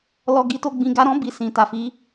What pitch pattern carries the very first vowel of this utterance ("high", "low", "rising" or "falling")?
low